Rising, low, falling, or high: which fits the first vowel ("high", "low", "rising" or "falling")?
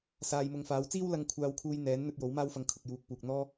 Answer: low